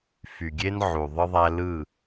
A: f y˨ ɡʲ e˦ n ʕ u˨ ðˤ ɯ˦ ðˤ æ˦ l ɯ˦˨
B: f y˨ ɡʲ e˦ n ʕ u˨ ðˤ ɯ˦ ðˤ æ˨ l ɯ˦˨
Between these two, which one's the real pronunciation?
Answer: A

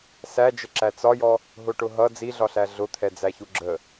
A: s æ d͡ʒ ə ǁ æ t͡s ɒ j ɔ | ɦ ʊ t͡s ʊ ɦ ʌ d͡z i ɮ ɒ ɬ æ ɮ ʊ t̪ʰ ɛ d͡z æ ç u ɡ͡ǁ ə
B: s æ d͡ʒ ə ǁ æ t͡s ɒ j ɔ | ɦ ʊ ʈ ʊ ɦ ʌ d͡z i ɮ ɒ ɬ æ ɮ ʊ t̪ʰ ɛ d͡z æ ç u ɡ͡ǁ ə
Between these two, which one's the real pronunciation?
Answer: B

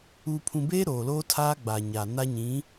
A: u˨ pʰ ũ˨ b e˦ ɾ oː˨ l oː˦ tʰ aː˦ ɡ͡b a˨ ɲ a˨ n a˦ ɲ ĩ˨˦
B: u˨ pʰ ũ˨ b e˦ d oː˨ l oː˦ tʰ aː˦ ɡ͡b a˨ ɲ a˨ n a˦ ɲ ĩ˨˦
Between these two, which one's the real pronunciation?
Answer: A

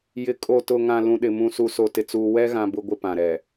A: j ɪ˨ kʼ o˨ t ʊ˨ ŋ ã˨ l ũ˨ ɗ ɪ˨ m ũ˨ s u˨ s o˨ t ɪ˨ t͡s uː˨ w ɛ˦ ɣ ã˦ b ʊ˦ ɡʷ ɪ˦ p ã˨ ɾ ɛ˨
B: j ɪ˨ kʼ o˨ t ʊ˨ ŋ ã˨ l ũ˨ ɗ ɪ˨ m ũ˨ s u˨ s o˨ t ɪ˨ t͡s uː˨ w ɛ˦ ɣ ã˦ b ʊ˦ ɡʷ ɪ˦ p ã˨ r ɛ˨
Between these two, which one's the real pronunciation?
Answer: A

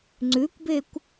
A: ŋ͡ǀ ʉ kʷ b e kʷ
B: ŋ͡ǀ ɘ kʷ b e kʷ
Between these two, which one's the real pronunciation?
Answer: A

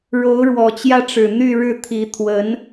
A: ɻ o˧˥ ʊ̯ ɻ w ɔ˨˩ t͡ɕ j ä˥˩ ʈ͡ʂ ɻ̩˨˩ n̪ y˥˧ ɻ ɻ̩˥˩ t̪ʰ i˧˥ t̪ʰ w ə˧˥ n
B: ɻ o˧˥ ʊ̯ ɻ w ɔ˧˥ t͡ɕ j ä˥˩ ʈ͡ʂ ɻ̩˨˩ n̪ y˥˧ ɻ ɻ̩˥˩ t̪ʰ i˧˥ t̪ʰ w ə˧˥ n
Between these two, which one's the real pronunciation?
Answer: A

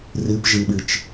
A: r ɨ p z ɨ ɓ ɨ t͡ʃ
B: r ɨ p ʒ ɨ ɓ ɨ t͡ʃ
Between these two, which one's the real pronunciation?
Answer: B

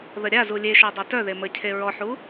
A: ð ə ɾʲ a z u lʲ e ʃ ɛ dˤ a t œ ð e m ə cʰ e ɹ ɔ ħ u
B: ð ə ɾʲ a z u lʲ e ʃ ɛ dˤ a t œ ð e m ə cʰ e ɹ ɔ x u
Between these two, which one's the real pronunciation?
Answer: A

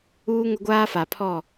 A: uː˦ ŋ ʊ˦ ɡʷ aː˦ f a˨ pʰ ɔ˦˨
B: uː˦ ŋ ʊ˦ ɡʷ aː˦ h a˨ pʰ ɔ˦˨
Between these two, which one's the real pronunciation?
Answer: A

